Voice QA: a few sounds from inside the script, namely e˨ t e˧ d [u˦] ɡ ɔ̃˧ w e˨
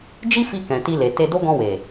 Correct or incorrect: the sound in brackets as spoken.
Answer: incorrect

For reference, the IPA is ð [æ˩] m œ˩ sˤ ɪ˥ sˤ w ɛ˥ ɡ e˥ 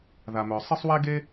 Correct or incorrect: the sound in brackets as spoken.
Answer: incorrect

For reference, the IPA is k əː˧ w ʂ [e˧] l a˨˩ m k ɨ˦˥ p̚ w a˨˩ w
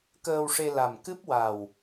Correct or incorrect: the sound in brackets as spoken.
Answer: correct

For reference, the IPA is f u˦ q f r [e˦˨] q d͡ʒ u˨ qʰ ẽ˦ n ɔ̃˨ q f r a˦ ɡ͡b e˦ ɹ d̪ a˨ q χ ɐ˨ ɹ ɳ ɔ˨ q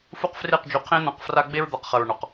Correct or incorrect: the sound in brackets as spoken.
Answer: correct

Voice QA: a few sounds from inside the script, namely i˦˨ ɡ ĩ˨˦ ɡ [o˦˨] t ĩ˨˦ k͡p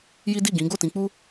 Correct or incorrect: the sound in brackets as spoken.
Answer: correct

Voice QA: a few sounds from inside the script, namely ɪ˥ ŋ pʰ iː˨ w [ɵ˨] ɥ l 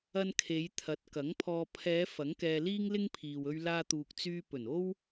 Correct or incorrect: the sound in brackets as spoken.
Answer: incorrect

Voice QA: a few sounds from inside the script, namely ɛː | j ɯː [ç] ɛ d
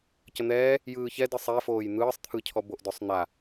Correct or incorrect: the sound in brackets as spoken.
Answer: correct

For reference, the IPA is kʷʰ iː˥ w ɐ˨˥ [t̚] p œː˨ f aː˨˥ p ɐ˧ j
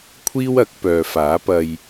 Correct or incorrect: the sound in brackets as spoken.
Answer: incorrect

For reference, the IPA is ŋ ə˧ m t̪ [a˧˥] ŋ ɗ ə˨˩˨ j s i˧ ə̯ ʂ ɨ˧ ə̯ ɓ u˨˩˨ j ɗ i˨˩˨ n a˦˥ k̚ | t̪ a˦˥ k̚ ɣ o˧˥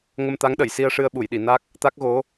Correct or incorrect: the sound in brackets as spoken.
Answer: correct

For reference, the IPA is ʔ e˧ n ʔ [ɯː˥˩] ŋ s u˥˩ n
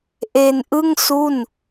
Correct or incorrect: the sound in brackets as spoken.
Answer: incorrect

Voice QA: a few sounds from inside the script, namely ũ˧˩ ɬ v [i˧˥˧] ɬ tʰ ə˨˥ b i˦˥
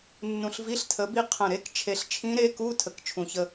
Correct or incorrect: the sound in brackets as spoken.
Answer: correct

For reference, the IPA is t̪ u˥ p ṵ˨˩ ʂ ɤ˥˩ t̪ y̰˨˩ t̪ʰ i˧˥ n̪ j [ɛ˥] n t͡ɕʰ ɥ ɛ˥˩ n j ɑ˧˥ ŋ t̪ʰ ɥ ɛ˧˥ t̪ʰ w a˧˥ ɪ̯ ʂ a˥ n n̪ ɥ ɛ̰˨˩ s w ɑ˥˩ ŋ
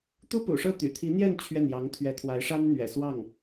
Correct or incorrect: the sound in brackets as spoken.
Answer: incorrect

